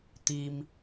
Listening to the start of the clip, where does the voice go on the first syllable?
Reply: low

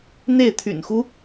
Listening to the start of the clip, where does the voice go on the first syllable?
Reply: falling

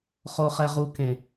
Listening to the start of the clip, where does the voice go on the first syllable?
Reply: low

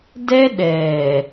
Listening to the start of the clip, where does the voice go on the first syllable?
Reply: high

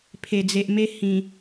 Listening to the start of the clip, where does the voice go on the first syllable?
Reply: low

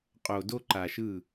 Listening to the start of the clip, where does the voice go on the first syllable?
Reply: low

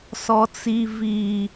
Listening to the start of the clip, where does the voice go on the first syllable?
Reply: low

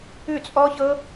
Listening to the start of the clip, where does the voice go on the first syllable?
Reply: falling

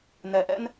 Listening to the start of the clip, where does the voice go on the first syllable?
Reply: low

